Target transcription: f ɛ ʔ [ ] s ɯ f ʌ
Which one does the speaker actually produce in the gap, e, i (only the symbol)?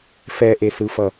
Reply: e